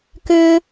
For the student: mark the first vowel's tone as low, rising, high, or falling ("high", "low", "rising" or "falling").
high